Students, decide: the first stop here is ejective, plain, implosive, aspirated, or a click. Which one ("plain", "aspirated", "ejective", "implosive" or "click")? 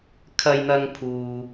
aspirated